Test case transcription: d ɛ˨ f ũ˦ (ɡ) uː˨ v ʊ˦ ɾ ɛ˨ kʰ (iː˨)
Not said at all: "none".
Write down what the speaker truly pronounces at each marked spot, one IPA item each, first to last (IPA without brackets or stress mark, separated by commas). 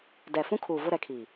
kʰ, iː˨